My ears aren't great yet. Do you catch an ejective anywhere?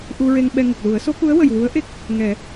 no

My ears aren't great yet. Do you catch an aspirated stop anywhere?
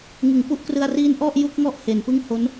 no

